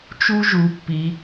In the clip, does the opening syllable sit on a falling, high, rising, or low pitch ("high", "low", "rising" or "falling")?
high